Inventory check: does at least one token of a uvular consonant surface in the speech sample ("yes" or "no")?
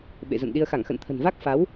no